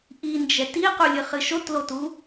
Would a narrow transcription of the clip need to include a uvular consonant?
yes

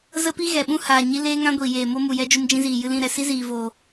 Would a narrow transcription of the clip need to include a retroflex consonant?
no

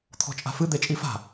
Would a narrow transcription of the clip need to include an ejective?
yes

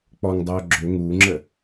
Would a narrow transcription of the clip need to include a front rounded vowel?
yes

